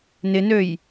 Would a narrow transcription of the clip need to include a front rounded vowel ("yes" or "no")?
yes